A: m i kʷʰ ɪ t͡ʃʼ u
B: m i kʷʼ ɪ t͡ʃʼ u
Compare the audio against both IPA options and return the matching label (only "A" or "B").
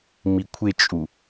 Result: A